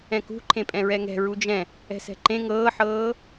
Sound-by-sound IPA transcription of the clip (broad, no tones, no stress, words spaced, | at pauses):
ɛ̃kṳ ǃʰẽpʼɛ̃ɹɛŋɛ̤ ɹud͡ʒɛ̃ | ɛ̤sɛ̤ǃẽ ŋɤːħɤː